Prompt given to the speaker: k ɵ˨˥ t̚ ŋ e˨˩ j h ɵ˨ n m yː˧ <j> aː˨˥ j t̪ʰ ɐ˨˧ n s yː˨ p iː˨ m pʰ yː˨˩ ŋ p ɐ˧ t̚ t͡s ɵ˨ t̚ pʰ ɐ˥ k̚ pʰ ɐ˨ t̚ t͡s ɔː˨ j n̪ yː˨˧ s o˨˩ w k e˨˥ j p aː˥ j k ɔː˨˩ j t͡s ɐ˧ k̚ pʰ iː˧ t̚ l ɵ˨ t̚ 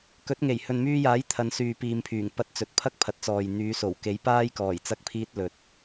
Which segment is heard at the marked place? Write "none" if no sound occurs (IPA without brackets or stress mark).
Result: j